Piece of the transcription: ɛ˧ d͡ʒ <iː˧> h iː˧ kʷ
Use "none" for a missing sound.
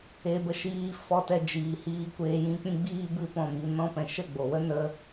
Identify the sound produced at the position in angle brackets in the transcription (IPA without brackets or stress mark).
iː˨